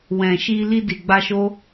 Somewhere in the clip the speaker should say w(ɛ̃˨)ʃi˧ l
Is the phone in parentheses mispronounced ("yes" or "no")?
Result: no